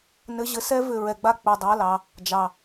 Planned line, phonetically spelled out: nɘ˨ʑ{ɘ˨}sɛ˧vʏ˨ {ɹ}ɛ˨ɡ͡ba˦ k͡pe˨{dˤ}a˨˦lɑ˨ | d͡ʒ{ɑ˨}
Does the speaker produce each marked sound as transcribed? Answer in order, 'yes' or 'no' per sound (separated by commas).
yes, yes, yes, yes